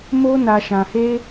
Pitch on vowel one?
high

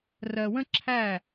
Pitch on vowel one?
low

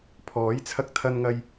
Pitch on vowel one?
rising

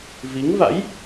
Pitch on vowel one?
rising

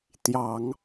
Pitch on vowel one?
low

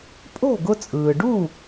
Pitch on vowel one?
falling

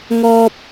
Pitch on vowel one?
high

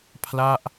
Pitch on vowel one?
falling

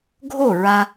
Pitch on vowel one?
falling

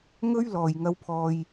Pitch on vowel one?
high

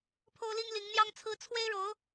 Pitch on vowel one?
high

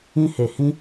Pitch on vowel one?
high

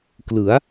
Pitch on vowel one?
rising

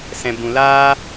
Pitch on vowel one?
low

